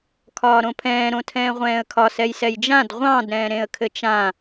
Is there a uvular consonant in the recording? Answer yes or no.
yes